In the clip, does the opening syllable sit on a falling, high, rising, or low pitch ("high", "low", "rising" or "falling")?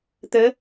rising